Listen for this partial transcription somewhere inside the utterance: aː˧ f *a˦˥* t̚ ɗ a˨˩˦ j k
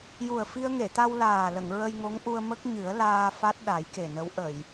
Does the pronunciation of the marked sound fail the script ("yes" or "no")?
no